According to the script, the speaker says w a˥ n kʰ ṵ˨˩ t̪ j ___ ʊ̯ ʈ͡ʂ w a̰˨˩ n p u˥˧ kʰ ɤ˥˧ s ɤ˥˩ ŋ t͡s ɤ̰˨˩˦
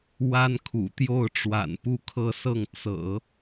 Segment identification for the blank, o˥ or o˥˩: o˥˩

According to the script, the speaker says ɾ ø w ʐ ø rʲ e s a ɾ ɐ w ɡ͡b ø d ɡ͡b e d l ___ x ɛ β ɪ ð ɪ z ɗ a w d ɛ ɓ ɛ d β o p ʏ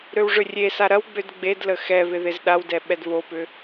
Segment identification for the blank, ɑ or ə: ə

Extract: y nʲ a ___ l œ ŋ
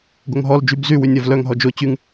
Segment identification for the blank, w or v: v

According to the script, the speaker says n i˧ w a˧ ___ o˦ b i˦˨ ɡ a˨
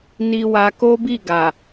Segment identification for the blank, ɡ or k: k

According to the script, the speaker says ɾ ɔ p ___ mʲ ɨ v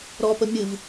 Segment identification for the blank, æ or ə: ə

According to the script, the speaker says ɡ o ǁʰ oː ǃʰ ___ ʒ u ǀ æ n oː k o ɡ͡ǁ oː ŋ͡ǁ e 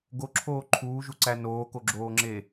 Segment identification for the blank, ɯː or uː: uː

